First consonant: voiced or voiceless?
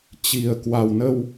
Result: voiceless